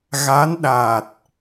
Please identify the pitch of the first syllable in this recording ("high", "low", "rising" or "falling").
rising